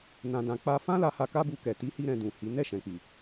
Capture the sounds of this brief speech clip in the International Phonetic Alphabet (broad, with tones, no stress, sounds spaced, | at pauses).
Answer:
n ã˨ d ã˨ k͡p a˧ f ã˦ l a˧ h a˧ k a˦ b u˧ k ɛ˨ t i˨˦ h i˧ ɾ ɛ̃˧ d ũ˨ h i˨˦ n ɛ˦˨ ʃ ɛ̃˨ k͡p i˨